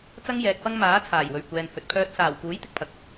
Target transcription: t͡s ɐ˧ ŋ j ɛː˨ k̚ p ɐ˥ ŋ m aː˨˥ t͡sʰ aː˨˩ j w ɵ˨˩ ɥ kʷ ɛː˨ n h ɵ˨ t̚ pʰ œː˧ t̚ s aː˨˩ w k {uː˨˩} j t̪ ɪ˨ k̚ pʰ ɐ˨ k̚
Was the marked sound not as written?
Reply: yes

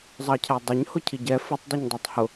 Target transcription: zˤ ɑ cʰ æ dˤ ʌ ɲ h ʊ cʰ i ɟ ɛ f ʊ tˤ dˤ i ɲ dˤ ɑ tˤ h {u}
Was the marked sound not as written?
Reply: yes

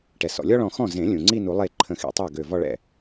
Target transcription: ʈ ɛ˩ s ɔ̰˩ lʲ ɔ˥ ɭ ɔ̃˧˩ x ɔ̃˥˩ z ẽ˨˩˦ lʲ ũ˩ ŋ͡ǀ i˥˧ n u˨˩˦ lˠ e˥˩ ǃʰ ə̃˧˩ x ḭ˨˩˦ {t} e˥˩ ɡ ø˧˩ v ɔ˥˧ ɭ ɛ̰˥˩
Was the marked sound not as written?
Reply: yes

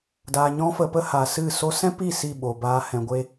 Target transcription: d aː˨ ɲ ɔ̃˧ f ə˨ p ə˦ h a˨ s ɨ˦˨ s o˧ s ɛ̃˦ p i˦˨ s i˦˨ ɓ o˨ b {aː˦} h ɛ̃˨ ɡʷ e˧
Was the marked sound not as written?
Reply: yes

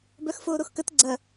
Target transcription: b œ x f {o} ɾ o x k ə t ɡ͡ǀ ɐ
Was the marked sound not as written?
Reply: yes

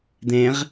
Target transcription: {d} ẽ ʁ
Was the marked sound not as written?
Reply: no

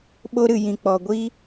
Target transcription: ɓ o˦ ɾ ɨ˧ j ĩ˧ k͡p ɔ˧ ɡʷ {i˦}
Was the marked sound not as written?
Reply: no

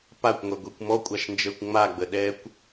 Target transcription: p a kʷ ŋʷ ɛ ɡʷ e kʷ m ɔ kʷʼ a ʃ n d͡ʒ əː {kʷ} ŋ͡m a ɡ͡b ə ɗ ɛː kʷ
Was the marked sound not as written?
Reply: no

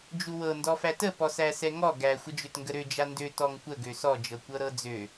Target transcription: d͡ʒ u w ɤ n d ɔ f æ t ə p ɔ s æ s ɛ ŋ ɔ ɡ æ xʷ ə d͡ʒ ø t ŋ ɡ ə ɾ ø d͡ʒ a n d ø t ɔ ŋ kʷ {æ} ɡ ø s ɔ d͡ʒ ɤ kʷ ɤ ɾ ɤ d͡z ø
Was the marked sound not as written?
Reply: yes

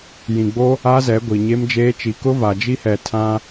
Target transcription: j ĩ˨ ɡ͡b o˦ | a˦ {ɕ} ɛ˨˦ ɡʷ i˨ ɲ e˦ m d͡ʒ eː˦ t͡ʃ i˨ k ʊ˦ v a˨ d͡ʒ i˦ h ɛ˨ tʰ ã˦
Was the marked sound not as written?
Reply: yes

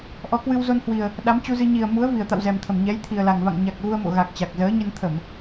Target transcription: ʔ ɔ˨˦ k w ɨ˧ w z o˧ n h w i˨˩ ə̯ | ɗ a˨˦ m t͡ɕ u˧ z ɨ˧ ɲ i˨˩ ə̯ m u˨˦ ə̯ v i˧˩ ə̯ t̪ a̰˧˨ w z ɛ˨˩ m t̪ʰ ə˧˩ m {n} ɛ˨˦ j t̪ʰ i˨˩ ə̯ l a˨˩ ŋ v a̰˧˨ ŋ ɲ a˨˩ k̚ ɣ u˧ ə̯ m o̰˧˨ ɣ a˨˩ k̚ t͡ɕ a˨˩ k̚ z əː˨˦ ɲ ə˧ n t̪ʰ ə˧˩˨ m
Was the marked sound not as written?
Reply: yes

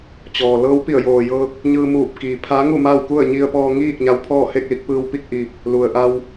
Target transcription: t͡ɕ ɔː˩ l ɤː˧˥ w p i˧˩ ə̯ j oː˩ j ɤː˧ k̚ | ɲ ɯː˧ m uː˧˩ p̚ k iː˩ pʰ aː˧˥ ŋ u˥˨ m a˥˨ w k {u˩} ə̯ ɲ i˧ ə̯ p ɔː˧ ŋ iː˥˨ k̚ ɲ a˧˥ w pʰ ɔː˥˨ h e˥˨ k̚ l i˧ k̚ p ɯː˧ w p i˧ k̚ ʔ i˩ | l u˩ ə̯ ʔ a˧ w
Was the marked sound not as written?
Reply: yes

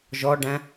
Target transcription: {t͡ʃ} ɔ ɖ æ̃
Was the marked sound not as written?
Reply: yes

